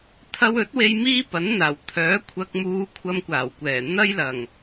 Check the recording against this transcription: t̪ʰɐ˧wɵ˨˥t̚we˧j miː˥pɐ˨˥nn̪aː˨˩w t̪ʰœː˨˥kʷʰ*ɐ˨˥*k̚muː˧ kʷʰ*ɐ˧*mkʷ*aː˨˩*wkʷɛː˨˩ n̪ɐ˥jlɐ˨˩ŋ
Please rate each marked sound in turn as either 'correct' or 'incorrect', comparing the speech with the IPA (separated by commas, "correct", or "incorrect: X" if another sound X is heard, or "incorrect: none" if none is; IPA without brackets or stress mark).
incorrect: ɐ˧, correct, correct